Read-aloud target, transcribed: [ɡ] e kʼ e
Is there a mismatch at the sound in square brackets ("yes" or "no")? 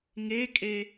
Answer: yes